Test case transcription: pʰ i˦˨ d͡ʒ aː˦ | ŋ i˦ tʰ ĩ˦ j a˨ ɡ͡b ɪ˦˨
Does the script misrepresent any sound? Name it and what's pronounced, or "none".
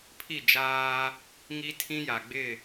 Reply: none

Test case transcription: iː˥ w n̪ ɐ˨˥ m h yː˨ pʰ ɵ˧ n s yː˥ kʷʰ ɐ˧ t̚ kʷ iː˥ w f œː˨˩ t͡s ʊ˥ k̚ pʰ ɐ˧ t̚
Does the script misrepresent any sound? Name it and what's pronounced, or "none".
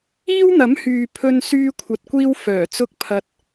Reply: none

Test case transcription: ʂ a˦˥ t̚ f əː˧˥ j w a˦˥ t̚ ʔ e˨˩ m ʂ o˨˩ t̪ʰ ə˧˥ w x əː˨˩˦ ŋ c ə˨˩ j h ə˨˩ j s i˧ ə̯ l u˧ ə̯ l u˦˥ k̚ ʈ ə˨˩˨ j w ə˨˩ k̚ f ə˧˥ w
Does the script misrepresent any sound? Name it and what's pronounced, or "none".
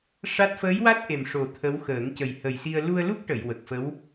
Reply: none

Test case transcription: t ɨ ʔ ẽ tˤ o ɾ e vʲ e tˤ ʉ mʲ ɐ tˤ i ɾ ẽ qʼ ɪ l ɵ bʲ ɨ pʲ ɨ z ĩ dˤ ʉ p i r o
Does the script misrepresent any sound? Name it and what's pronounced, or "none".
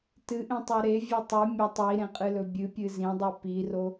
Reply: ɪ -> ɨ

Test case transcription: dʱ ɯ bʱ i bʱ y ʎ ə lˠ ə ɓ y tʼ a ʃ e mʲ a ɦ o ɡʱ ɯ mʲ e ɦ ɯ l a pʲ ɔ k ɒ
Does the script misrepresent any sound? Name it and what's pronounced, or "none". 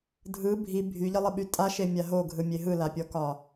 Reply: none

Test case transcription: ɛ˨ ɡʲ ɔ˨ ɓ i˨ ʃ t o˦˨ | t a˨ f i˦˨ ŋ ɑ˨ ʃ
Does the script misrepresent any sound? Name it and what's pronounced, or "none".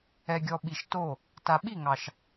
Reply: f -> ɓ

